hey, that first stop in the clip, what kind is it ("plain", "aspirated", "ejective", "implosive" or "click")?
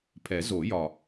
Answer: aspirated